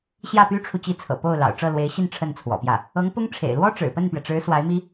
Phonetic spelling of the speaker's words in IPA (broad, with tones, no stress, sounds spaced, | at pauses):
ɕ j ä˥˩ p y˥ ʈ͡ʂʰ u˨ t͡ɕ i˥˩ t͡sʰ ɤ̰˨˩ p o˥˩ ʊ̯ l ɑ̰˨˩ ʊ̯ ʈ͡ʂ ɤ˥˩ l w e˧˥ ɪ̯ ɕ i˥˧ n ʈ͡ʂʰ ə˥˩ n t͡sʰ w ɔ̰˨˩ p j ä˥˩ | ɤ˧˥ ŋ p ʊ˥ ŋ ʈ͡ʂʰ ḛ˨˩ ɪ̯ l w ɔ˥ ʈ͡ʂ ɻ̩˨˩ p ə˥˩ n p ɥ ɛ˩ ʈ͡ʂ ɻ̩˧˥ s w a˧˥ ɪ̯ m i˥